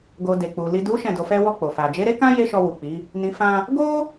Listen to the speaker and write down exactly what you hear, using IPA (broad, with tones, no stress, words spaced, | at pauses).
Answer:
ɡo˨ de˨k͡pu˨ li˨du˨˦ ʃɛ̃˦˨do˧fɛ˦wɔ˦˨ k͡po˨fa˨ d͡ʒe˨˦ɾe˦kã˦ je˦ʃɔ˧wu˨k͡pi˨˦ | nĩ˨fã˧ | ɡo˦